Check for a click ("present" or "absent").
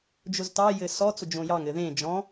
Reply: absent